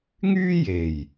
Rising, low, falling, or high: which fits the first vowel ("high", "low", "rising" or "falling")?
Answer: high